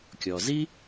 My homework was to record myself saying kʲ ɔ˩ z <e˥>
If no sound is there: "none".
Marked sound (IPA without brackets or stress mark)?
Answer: i˥